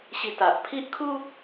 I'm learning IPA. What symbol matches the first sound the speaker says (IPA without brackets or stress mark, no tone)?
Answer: ɕ